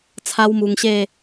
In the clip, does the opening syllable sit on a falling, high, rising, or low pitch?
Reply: high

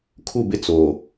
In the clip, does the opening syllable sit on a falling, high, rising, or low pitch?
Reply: falling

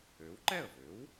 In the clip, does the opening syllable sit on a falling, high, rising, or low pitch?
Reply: rising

